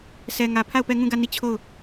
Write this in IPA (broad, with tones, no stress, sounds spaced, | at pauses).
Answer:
sʰ ɛ˨ ŋ ä˨ pʰ a˦˨ ʊ̯ p ɛ˦˨ ŋ ũ˦˨ ɡ ä˦˨ n i˦˨ t͡ɕʰ o˦˨ ʊ̯